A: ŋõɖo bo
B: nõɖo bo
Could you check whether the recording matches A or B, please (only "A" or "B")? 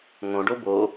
A